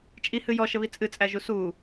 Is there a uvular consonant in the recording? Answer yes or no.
no